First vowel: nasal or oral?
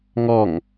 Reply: oral